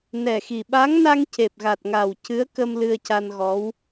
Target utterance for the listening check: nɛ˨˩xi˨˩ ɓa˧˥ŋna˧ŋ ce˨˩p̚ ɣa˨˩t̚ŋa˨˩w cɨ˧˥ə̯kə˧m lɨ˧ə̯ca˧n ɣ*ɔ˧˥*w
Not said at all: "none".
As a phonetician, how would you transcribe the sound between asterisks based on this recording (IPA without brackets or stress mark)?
ɔ˧˥